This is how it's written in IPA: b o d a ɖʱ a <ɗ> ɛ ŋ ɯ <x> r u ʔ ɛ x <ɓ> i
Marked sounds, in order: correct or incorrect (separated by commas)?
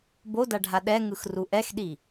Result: correct, correct, incorrect